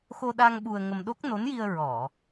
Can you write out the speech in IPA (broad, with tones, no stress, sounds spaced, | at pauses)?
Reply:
x o˧ ɗ a˧ ŋ ɓ u˧ ə̯ ŋ ə˧ m ɗ o˦˥ k̚ n o˧˥ n j i˧ ə̯ ɹ ɔ˨˩˨